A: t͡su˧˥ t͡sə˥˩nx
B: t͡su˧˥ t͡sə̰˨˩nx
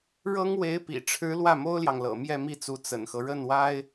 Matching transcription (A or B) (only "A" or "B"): B